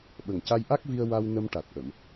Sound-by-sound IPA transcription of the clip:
ɓ ə˨˩ ŋ c a˧ j ʔ a˦˥ k̚ v i˧ ə̯ w a˧ w n ə˧ m ʈ a˨˩ t̚ ʔ ə˨˩˨ m

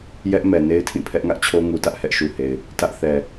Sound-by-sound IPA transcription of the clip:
j ɛ˦ ʔ m ɛ˨ n e˦ ɪ̯ tʰ ĩ˦˨ pʰ ɛ˦ ʔ ŋ ä˦ ʔ t͡ɕʰ o˦ ŋ u˨ t ä˦ ʔ h ɛ˦ ʔ ʃ u˨ h e˨ ɪ̯ | t ä˦ ʔ θ ɛ˨

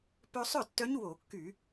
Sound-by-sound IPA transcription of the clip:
p œ˧ sˤ œ˥˩ tː œ˧˥ ɲ w o˧˩˧ kː y˧˩˧

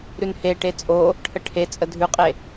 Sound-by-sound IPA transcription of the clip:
ɾ ʉ n h e ʈ e t͡sʼ o | ʈʰ ə ʈʰ e t͡sʼ ə dʱ ʉ qʼ e

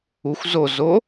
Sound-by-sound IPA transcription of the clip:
u xʷ z o z o

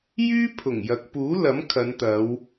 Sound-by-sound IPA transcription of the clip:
j yː˥ pʰ ʊ˨˩ ŋ j ɐ˨ k̚ p uː˨˥ l ɐ˨˥ m kʰ ɐ˨˧ n t̪ ɐ˨˧ w

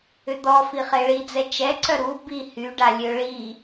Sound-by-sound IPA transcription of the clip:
ʏ d̪ ɔ f i χ e ɭ i d͡z ɛ t͡ʃ ɛ ǀ œ ɾ u b i h y ɖ a lʲ ø ɭ i

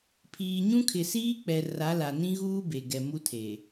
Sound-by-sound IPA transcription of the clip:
pʰ iː˨ ɲ ũ˦ kʰ ɪ˨ s iː˦ k͡p ɛ˨ r a˨˦ l a˨ n ĩ˦ ɣ uː˦ b e˨ ɡ ɛ˨ m u˦ tʰ e˨

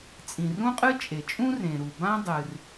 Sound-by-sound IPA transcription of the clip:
t͡sʼ ĩ˩ r ũ˥ qʼ ɨ˥ t͡ʃʼ e˩ t͡ʃʼ ũ˥ r ẽ˩ ɾ u˩ b ã˥ dˤ ɨ˩ r

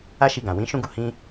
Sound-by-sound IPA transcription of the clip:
a˦ ʃ i˧ ɡ ã˨ w ĩ˨˦ ʃ ũ˦ ɡ u˧ h ĩ˦

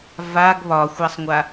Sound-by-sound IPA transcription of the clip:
v a ɡ β ɒ xʷ a sˤ ŋʷ a

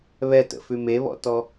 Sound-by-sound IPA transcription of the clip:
β ɛ t ə̰ f ʉ m e β ɔ̰ t ɔ

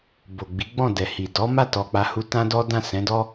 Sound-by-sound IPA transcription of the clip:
b o˨ ɡ͡b i˨˦ ɡ͡b ɔ̃˦˨ d ɛ˨ h i˨ d ɔ˨˦ m a˦˨ t ɔ˨ k͡p a˧ h u˧ t ã˦ d ɔ˦ d ã˦˨ s ɛ̃˨˦ d ɔ˦

